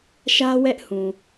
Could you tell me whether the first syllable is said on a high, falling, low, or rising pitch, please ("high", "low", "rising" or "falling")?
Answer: high